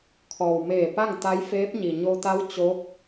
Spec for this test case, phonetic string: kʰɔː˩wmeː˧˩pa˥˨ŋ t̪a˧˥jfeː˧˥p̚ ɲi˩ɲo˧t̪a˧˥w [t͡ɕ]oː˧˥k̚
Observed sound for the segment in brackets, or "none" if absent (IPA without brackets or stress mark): t͡ɕ